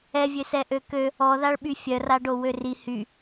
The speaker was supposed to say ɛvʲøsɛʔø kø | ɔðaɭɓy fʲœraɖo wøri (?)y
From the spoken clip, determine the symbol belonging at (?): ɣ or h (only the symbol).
h